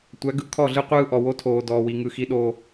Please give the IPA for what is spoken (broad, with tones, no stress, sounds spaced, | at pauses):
tʷ æ˨˦ ɡ ɯ˨˦ kʰ ɔ˦˨ ɮ ɯ˦ qʷ ɯː˦ ʔ ɔ˨ w o˦ tʰ oː˨ d ɔː˨ w i˨ ŋ ɯ˨ x i˦ ɗ oː˦